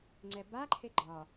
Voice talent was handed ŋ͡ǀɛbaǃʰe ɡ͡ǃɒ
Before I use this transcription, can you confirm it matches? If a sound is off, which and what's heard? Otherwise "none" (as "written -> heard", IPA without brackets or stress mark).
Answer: none